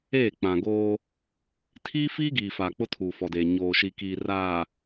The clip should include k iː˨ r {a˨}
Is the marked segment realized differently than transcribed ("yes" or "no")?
yes